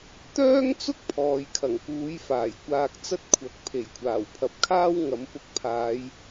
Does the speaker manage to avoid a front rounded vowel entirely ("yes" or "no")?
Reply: no